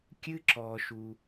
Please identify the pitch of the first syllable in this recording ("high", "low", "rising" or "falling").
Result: high